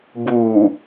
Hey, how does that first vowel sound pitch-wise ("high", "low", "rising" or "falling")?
low